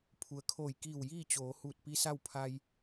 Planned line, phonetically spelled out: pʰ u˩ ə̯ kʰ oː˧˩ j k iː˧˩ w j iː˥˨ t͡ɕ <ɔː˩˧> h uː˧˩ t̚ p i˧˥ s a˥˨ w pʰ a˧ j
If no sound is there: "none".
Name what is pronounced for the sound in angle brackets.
oː˩˧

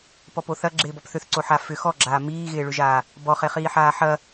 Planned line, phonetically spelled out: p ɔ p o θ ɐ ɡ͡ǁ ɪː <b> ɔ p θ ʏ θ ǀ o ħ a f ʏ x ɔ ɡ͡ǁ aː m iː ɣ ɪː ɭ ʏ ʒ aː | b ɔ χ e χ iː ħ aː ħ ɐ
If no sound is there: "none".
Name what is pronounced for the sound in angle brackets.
b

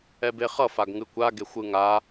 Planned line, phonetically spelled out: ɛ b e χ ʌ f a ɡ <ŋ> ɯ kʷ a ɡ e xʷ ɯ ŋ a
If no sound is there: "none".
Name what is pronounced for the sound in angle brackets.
ŋ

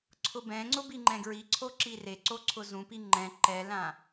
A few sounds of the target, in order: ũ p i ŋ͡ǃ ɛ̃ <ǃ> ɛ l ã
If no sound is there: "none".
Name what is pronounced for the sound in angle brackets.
ǃ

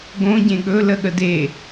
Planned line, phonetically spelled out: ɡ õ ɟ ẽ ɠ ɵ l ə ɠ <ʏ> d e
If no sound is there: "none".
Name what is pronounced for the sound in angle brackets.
ə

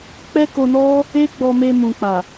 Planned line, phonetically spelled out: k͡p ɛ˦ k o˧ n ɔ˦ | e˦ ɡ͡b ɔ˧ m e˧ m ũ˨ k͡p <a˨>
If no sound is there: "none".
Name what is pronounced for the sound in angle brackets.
a˨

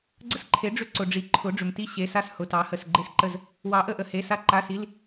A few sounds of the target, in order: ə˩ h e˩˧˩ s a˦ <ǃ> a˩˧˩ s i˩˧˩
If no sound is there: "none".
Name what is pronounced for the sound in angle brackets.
ǃ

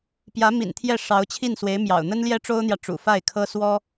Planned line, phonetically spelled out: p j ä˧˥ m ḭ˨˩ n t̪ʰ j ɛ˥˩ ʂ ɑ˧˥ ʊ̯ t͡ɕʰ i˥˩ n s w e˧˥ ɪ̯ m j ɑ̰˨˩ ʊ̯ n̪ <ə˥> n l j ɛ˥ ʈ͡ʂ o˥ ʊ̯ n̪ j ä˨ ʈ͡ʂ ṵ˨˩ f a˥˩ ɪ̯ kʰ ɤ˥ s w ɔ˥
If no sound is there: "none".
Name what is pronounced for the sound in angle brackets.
ə˥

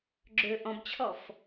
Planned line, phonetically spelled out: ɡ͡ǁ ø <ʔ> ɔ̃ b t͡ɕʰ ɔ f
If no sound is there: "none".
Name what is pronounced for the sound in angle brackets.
ʔ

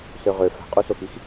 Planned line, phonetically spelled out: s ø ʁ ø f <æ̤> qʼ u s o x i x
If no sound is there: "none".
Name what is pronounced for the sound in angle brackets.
æ̤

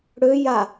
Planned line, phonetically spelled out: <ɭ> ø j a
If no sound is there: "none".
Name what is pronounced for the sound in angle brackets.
ɽ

